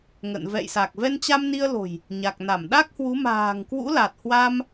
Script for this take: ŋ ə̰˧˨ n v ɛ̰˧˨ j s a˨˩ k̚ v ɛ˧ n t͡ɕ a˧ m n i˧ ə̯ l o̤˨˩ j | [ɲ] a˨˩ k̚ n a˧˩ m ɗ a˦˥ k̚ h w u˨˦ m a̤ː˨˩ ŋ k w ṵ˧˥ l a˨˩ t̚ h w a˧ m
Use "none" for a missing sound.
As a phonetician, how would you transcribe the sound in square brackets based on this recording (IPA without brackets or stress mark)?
ɲ